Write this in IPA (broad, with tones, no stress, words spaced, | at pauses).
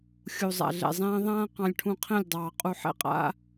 xʲu˨zˤa̰˨ɮɛ̰˨zˤɛ̃ː˦ ðˤãː˦ qɑ̃˧lʲʈʰũ˧qʰɛ̃˦˨lʲdˤɑː˨ qʼu˧ħɛ̰˦qʼa̰˦